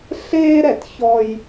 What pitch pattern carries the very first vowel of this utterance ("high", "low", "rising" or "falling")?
high